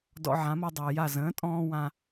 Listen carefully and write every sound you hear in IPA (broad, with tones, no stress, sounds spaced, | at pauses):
d ɔ̰˧ ʕ ã˩˥ m ɤ˧ dˤ əː˩ j a˥˩ z ə̃ː˩˥ tʼ ɔ̃ː˧ w ã˧